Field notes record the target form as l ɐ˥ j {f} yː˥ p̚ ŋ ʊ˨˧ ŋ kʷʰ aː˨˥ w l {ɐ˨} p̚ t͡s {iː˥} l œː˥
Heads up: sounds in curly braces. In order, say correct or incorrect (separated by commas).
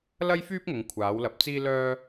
correct, correct, correct